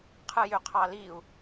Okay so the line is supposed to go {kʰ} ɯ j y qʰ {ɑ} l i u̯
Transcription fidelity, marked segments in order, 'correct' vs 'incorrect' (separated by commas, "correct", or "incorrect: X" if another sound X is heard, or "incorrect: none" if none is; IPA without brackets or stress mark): incorrect: qʰ, correct